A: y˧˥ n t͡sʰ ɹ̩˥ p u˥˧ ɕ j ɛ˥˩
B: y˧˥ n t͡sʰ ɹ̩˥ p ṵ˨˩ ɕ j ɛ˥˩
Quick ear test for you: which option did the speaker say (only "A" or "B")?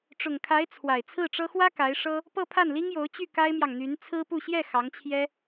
A